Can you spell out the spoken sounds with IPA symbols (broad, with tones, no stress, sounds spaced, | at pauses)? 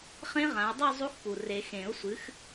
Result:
χ ẽ˦˥ ʁ ã˨˦ ə̯ dˤ ɨ˥˧ zˤ u˦˥ x p u˨ r e˨˩˦ x ẽ˨˩˦ ʊ̯ sʷ ɨ˨˦ x